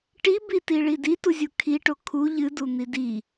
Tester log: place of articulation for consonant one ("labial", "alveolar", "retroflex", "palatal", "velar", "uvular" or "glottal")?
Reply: retroflex